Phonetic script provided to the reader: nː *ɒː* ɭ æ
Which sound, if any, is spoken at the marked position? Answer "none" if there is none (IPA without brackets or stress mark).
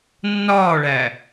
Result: ɒː